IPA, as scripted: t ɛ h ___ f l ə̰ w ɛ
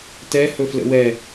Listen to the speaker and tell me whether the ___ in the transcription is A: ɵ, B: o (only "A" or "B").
A